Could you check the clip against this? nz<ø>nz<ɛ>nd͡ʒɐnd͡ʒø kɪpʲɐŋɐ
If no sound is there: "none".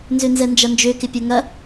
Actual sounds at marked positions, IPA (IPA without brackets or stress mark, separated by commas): ø, ɛ